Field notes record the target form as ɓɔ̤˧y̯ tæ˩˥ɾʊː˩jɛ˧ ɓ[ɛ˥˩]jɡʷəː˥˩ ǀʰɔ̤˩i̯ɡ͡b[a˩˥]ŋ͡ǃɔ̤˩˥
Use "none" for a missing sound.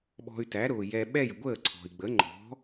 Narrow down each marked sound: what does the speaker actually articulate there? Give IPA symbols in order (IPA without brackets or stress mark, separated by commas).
ɛ˥˩, ə˩˥